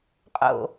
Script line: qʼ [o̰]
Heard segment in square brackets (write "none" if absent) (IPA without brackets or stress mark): o̰